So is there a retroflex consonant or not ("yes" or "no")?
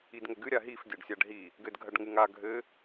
yes